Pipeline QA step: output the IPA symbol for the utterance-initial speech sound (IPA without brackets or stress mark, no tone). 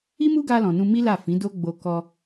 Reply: i